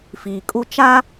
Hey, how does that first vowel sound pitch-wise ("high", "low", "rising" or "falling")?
low